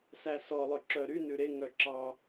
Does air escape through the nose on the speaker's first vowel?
no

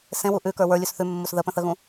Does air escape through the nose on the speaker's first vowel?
yes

